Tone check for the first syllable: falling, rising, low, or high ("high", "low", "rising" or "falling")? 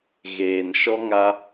low